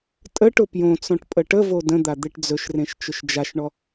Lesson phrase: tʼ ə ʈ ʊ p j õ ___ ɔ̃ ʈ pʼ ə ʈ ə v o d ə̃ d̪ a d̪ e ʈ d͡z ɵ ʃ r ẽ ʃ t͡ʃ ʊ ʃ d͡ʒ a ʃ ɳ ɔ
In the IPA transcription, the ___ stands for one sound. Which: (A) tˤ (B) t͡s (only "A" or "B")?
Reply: B